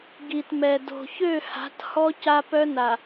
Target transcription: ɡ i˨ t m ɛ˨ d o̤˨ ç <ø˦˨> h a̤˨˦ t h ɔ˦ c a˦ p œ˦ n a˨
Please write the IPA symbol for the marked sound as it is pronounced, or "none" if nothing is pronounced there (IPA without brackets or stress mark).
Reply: ø˦˨